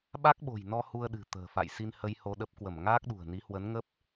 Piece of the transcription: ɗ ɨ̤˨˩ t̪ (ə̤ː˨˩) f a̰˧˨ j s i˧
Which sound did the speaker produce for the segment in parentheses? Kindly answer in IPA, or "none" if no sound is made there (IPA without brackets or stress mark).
ə̤ː˨˩